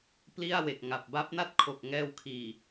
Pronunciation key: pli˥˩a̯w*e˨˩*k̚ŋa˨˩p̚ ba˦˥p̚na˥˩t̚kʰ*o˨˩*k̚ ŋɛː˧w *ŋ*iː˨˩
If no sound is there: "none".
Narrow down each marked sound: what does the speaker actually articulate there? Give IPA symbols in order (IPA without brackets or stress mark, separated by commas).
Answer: e˨˩, o˨˩, kʰ